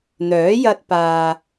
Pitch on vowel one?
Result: rising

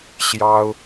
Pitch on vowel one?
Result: high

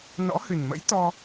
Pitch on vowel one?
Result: rising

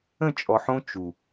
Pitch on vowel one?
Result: falling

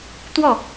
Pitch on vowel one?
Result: falling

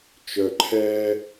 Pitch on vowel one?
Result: low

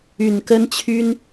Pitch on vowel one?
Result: low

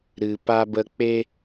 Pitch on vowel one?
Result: low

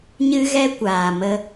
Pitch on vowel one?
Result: high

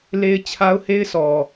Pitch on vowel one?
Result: high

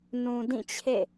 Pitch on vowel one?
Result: low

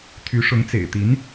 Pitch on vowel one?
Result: rising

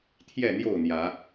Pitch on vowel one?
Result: falling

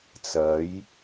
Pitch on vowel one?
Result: rising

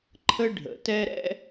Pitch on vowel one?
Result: high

